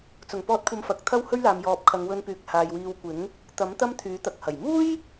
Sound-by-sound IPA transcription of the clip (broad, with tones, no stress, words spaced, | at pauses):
t͡sʊ˨˩ŋpɔː˨˥t̚kʷʰɐ˨m fɐ˨k̚t̪ʰɐ˥whɵ˥ɥ laː˨m jɔː˨p̚kʰɐ˨˧ŋwɵ˧npyː˨k̚ haː˨jwiː˧w kʷɪ˨˥ŋ | t̪ɐ˨˥m t̪ɐ˥mt̪ʰyː˨˥ t̪ɐ˨k̚hɐ˨˩j muː˥j